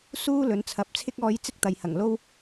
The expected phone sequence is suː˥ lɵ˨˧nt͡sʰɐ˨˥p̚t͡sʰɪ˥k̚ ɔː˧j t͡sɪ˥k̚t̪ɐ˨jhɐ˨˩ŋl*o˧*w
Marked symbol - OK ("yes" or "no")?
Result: no